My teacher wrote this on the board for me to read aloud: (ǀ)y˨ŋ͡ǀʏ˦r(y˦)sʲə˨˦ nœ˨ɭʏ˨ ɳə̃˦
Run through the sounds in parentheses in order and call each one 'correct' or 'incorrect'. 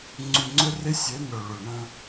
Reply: incorrect: ŋ͡ǀ, incorrect: ɪ˦

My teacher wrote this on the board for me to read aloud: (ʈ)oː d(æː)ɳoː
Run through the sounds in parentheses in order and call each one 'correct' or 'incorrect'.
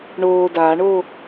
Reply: incorrect: ɳ, incorrect: aː

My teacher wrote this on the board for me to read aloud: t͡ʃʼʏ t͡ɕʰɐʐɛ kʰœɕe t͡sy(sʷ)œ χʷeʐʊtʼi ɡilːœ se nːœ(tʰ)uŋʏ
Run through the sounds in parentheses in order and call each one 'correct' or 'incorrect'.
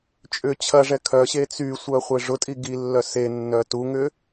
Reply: correct, incorrect: t

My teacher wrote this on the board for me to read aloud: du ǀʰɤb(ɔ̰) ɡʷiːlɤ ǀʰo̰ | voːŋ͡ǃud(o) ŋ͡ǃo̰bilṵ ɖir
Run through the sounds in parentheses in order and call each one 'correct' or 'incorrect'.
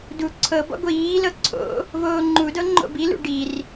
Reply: correct, incorrect: ɤ

